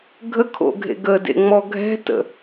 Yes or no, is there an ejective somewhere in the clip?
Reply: no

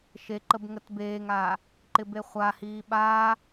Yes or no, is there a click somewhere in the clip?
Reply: yes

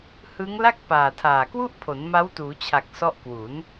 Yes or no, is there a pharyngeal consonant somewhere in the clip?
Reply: no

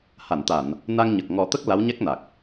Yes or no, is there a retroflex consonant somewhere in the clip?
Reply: no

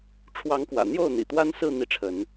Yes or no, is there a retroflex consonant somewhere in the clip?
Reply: yes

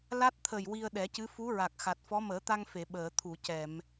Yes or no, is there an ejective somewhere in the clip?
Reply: no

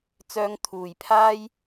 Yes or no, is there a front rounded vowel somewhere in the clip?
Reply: yes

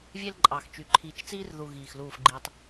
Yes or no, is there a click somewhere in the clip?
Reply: yes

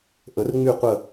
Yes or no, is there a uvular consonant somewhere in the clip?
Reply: yes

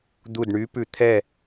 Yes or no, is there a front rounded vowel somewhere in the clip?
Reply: yes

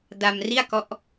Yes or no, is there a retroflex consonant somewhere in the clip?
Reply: no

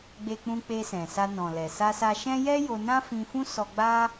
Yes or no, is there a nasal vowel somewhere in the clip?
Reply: yes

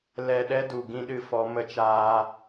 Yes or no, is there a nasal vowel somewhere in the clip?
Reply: yes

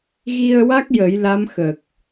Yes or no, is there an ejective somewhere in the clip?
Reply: no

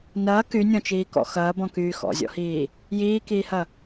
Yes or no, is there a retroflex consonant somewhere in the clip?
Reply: no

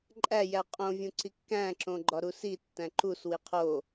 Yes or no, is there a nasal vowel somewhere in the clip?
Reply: yes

